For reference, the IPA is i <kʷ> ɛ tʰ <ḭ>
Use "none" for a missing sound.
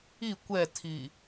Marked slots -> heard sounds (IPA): kʷ, i

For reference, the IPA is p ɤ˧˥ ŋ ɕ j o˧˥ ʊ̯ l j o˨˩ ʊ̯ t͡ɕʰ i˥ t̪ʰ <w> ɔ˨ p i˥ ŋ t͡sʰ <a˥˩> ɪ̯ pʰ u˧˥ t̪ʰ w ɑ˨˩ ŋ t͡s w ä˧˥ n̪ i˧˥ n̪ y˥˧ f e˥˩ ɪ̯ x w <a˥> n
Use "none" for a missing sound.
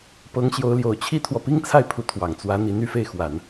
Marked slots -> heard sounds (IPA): w, a˥˩, a˨˩˦

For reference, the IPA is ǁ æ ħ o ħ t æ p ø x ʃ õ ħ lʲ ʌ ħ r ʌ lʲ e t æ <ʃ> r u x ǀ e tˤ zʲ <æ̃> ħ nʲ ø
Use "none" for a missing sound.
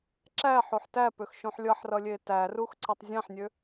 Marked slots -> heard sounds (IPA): none, æ̃

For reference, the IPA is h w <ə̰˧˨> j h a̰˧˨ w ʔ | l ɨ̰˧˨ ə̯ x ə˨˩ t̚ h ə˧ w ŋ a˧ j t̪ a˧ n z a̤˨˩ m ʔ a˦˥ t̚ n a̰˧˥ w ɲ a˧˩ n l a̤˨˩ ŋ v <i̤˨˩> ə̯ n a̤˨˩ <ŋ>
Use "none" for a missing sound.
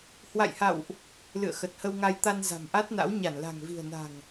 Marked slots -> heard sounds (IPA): a̰˧˨, i̤˨˩, ŋ

